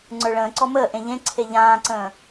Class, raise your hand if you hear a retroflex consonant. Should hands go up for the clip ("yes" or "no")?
yes